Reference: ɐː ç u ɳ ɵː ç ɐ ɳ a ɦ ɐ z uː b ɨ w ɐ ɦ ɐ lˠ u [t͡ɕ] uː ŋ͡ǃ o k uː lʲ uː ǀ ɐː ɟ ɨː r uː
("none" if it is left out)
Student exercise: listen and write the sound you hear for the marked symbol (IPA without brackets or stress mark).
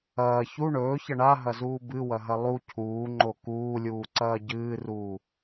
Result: cʰ